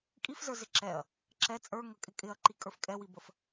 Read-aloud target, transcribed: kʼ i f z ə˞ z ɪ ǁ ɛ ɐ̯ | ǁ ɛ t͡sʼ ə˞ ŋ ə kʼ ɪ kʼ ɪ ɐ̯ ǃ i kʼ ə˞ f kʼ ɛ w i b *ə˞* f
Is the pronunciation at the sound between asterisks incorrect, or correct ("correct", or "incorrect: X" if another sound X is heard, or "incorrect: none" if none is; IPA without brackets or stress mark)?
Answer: incorrect: ə